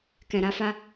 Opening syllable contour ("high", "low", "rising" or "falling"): low